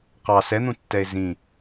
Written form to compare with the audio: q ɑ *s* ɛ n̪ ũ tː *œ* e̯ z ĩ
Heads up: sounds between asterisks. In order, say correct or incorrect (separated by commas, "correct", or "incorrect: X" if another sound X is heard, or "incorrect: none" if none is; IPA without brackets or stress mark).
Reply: correct, incorrect: ɛ